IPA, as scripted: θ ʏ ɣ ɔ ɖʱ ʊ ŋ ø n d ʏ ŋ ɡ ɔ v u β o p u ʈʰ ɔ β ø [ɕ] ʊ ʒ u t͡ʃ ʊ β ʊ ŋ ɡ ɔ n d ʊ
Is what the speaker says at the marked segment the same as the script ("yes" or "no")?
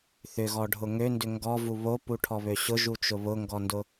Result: yes